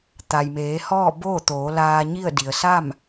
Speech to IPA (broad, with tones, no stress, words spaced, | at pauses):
t̪a˩jmeː˩˧hɔː˥˨ boː˥˨t̪oː˩˧ laː˧ɲi˥˨ə̯ di˩ə̯sa˥˨m